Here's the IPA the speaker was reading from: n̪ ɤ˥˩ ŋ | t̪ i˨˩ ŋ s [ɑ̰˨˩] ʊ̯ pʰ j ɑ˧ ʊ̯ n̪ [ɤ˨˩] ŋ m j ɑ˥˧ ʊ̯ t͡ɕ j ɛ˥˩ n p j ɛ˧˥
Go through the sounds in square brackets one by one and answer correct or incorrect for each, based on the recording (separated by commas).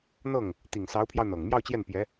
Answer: incorrect, correct